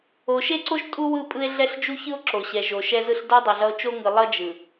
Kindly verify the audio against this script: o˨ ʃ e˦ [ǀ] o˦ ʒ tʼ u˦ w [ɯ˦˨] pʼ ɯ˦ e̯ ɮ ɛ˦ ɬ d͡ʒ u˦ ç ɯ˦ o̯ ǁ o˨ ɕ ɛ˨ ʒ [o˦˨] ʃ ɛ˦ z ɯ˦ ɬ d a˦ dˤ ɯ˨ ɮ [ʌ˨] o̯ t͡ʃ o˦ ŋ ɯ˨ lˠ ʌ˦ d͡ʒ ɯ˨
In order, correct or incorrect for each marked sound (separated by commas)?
correct, correct, incorrect, incorrect